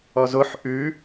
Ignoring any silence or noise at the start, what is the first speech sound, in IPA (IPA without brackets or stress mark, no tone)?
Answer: ɔ